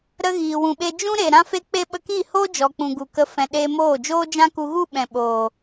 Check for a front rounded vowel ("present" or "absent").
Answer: absent